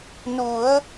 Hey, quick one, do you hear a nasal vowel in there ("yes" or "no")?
no